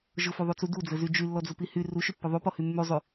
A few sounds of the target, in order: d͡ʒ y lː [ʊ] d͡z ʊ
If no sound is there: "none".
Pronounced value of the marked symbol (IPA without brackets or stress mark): ɔ